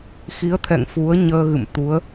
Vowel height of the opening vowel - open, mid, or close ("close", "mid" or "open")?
close